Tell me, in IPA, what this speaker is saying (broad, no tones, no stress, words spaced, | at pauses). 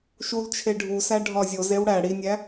ʃult͡ʃʰe ɖʱusæ ɖʱɒzʲozew ɽæ ɽinʲæ